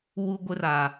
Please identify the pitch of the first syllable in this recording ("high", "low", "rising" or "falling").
high